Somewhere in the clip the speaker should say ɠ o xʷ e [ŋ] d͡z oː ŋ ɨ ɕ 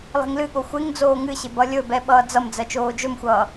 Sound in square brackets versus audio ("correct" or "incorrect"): correct